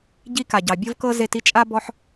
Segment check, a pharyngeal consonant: present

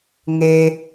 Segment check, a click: absent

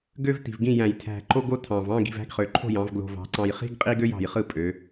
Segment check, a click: present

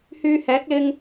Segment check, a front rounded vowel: present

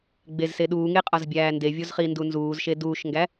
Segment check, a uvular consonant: present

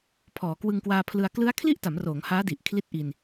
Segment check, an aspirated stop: present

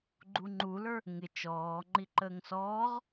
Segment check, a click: present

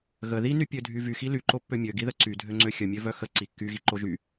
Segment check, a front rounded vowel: present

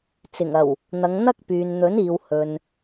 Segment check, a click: absent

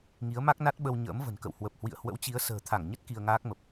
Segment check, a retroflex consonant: absent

